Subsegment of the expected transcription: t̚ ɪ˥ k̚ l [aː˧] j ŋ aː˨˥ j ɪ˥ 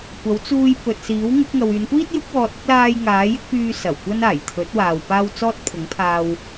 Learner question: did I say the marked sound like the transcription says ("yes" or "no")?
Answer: yes